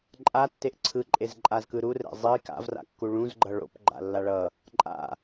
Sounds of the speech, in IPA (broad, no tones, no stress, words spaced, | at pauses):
ǃʼatːeʔ ǀʰɯǃʼezǃʼazkɯ ɾurɛ̰ zˤi ka̰vra̰kːu ɭũzɡ͡ǃʌ ɭo̰pɡ͡ǃa̰lːa ɭʌ | ǃʼa̰